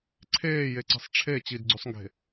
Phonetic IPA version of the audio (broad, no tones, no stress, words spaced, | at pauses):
ǀʰeːjeǀe̤sˤ ʈ͡ʂʰe t͡ɕidɡ͡ǀøsˤŋɡe̤